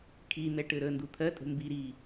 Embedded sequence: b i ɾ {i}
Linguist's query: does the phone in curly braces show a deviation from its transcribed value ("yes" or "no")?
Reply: yes